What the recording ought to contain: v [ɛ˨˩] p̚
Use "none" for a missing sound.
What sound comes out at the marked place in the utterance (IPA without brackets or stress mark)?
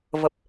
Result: ə˨˩